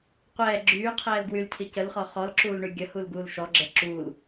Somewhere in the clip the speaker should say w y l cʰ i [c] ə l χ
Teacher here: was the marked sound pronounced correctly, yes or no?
yes